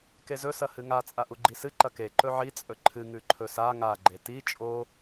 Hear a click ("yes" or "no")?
yes